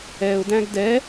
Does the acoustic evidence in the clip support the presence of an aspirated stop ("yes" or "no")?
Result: no